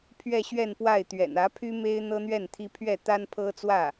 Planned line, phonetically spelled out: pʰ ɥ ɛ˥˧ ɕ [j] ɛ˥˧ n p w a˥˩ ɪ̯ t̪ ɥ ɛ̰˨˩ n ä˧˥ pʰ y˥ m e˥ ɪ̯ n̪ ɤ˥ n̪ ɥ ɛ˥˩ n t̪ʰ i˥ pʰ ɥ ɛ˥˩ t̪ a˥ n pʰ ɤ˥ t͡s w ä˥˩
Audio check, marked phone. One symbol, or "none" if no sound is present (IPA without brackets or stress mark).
ɥ